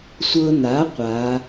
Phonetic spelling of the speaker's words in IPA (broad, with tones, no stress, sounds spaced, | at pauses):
sʷ ɤ˧ n a˩˥ qʷ a˩˧